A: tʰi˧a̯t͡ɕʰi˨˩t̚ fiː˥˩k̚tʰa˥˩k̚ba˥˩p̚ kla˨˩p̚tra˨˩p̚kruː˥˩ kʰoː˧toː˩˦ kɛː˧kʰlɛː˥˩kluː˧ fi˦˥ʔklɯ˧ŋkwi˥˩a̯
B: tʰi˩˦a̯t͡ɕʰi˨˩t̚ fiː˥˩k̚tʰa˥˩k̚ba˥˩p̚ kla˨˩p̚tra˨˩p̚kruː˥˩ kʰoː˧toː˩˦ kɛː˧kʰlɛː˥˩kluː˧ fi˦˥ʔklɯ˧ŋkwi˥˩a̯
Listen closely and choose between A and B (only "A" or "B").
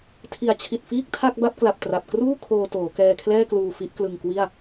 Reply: B